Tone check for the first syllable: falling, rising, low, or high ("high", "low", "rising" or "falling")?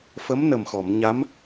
rising